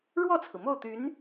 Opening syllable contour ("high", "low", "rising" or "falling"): falling